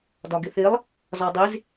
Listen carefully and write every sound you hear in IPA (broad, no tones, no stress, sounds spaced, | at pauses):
d ɒ ɡ ɪ θ i lˠ | z ɒ dˤ i z